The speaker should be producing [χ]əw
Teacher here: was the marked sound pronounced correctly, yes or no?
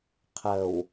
no